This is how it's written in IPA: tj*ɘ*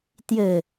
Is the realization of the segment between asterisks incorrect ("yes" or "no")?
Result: no